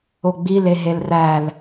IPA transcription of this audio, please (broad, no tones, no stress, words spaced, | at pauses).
oɡ͡bil eɦelræl